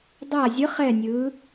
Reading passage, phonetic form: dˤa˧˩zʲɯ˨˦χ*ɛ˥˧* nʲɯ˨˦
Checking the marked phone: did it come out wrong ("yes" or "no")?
yes